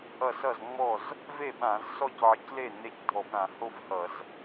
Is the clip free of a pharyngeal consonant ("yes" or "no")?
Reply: no